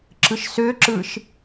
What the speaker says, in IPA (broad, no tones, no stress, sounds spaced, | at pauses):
ǁ ɯ ʃ s ø ǁ ɯ ʃ